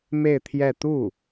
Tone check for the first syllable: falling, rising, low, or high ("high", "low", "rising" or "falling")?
falling